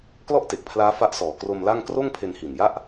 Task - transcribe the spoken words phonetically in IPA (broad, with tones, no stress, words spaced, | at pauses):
klɔ˥˩ʔte˨˩k̚pʰlaː˦˥ fa˦˥ʔsɔː˨˩ kro˧mla˥˩ŋ kroː˥˩ŋpʰe˧nhi˨˩nja˥˩ʔ